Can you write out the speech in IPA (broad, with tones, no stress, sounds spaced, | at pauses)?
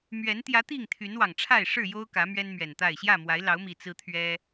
m ɥ ɛ˨˦ n t̪ j ä˨˦ t̪ i˥˨ ŋ t̪ʰ y˨˦ n w ɑ˨˩ ŋ ʈ͡ʂʰ a˥˨ ɪ̯ ʂ ɻ̩˥˨ j o˦ ʊ̯ k ä˨˦ m ɥ ɛ˦ n m ɥ ɛ˨˩ n t̪ a˥˨ ɪ̯ ɕ j ä˥˨ m w a˨˦ ɪ̯ l ɑ˨˦ ʊ̯ m i˨˩ t͡s ɹ̩˦ t̪ʰ ɥ ɛ˦